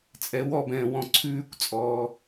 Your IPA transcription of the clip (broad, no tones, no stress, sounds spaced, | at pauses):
t͡sʼ ɛ w ɔ b ɛ̃ː w ɔ̃ ǀʰ ʉː kʷ t͡sʼ ɔː